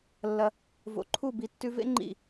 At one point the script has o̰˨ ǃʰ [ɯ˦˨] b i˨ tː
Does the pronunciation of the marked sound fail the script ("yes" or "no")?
yes